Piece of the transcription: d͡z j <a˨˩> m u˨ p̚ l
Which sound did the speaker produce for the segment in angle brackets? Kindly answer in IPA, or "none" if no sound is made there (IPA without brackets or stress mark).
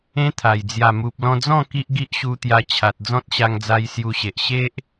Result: a˨˩